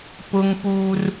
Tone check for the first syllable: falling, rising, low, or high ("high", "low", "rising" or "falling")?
high